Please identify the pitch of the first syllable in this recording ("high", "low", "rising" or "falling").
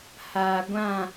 low